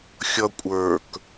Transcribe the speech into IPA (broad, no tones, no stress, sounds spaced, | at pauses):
xʲ ʌ kʷʼ ə˞ k